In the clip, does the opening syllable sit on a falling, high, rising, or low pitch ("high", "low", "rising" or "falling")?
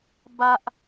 high